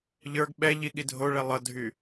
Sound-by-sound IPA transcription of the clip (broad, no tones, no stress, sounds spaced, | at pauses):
ʎ ə˞ ɡ ɓ ɛ ʎ i ɠ i dʱ o ɭ ɛ lˠ ʌ dʱ y